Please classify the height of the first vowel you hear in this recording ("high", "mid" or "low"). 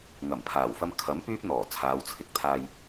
low